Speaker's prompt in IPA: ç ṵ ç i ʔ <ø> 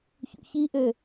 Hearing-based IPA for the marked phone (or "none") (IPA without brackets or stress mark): ø